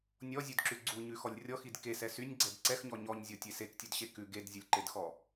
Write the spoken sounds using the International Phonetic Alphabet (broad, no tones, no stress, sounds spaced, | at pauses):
nʲ ɔ zʲ ʉ d ǁ ʉ ɡ͡ǀ u ɲ ʉ x ɔ lʲ rʲ ɔ x i d k e s ɛ s y nʲ ɡ͡ǀ ɛ d ǀ ɛ x ɲ ɔ ɲ ɔ ɲ zʲ ɔ tʲ e s e k tʲ ʉ d ɕ e k ʉ ɡ e d zʲ u lʲ ǃ e d x ɔ